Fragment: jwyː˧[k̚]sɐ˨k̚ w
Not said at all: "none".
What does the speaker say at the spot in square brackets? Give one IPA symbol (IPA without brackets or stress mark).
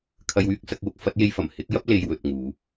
k̚